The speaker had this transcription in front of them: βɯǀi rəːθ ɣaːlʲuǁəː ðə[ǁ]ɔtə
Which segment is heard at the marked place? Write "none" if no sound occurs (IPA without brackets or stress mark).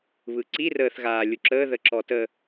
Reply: ǁ